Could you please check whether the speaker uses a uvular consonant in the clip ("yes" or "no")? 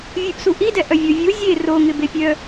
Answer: no